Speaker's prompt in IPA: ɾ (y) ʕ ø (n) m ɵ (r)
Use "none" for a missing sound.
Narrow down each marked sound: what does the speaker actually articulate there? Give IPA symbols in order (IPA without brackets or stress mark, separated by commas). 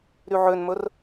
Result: y, n, r